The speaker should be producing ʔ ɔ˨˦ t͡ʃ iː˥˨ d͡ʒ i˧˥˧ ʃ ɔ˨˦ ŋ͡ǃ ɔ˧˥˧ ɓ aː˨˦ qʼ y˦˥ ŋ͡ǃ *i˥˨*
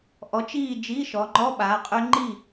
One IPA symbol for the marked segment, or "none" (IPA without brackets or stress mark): i˥˨